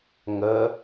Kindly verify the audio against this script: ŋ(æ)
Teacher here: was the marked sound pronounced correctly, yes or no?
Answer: no